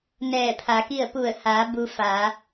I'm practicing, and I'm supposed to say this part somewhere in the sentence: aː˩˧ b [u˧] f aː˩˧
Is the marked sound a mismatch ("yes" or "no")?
no